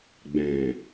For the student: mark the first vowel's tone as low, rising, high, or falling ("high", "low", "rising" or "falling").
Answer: low